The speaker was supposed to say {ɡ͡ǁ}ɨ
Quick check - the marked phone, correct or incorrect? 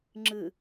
incorrect